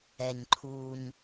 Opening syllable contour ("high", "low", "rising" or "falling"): low